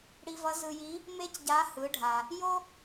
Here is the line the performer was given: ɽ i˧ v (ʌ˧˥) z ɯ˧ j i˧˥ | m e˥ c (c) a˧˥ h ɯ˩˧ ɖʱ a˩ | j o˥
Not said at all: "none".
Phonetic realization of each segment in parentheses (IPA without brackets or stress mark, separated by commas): ʌ˧˥, ɟ